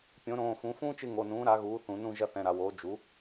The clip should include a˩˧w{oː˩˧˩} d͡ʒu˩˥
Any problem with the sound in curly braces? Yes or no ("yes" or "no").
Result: yes